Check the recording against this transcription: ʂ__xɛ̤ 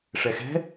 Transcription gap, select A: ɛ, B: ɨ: A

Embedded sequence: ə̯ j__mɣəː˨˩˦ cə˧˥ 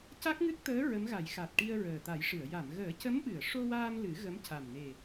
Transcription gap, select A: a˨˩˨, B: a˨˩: A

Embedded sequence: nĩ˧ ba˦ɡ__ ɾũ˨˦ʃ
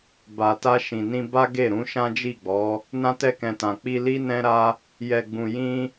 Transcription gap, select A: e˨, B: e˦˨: B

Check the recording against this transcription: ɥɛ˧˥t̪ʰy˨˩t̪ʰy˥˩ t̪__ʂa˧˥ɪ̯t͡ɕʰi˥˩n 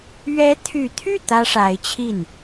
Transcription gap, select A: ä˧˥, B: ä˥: B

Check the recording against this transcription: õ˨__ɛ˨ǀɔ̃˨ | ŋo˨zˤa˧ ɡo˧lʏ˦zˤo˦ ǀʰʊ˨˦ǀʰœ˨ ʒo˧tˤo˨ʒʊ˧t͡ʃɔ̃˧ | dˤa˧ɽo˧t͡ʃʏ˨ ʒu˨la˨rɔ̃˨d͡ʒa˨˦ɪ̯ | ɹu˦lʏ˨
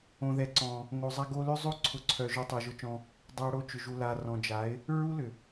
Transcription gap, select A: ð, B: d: A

